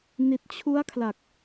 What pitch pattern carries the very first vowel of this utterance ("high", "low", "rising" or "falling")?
low